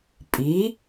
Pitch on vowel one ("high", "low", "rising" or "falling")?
rising